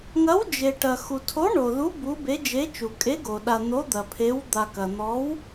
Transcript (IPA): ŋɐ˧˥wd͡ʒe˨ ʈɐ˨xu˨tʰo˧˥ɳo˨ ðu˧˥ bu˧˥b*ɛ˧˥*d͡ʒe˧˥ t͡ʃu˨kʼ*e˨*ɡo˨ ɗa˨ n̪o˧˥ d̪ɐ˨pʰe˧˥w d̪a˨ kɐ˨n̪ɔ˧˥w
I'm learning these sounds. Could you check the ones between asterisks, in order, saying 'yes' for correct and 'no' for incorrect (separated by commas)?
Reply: no, no